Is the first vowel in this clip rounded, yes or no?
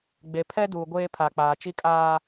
no